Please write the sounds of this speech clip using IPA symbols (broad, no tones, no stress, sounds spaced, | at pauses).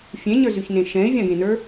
fʲ ẽ ɲ ə˞ z y ç n ẽ ʃ ɛ̃ ɪ̯ vʲ ã ɡ ẽ n ə˞